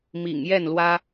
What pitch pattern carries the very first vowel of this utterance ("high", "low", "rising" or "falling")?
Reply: low